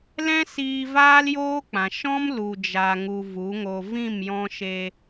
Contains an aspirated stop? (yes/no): no